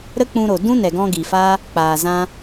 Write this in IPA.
ɾə˦k͡pũ˧ɾo˨ dũ˦nɛ˨ɡɔ̃˧ ɡi˨faː˦ | k͡paː˨ zã˦

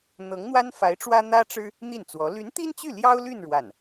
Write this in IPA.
n̪ɤ˧˥ŋn̪wa˥nfa˧˥ɪ̯ʈ͡ʂwä˥ n̪ä˥ʈ͡ʂɻ̩˥ | n̪i˥˩nt͡swɔ˧˥ ly˧˥nt̪i˥nt͡ɕy˥˩ ljɑ˥ʊ̯ly˥˧n ɻwa˥˩n

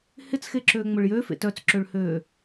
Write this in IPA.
hɪt͡sxeǁøː ŋ͡mʊɭjø fḛtœt͡sǁøɭhøː

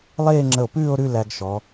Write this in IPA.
lˠeː˥˧ŋ͡ǁə˧˩o̯pʉː˥˧o̯ ɾʉ˥˧ læ˧ɡʃɔ˩˧

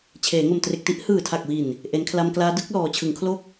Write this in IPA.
t͡ɕʰeː˩˦ŋo˨˩mtre˨˩k̚ ti˥˩ʔ hɯː˨˩tʰa˨˩k̚wi˨˩n | ʔe˩˦nkʰla˧mklaː˦˥ dɯ˦˥k̚ lɔː˩˦t͡ɕʰɯ˩˦ŋkʰlo˥˩k̚

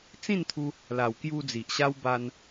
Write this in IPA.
t͡sĩ˥˧nt̪ʰu˧ | la˨˩wkju˧ d͡zi˨ʔɕa˦w ba˦n

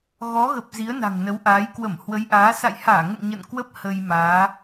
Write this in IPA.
ɣɔ˨˦ɣə˨˩p̚ zi˨˦ə̯na̤˨˩ŋnə˨˦wʔaː˨˦j kwə˧˩mhwə˨˦jʔaː˨˦ sa̰˧˨jhaː˧˩ŋə̰˧˨n ɲə̰˧˨nkwə˦˥p̚ hə˧jmaː˨˦

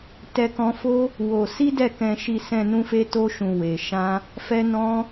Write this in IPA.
tɛ˦kɔ̃˦ fo˦ | wo˧ si˦dɛ˦˨kɛ̃˧ʃi˧ sɛ̃˧ nũ˦fe˦ to˦ʃũ˧ we˧ ʃã˦ | fɛ˦nɔ̃˦

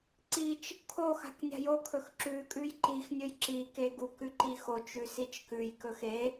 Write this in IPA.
ǀit͡ʃ | kʰoxa̤k nʲa̤jokʰɵx ǁʉkʼʉj ǃixnʲɵj ǁi keɡukʉ ǃixot͡ʃʉ sit͡ʃkʉjkɵx e

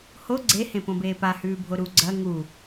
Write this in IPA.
ho ɡ͡ǀehẽpõbeː pahʉːbʱo ɾu ɡ͡ǀɐ ŋu

